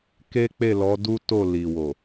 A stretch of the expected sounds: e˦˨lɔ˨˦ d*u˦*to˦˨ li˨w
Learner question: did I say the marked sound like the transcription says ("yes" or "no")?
yes